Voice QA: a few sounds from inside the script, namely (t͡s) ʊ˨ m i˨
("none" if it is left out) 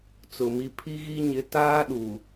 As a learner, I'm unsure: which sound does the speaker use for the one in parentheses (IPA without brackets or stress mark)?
t͡s